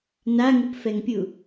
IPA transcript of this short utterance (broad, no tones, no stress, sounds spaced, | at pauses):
n a ŋ u p f ɛ ŋ pʲ u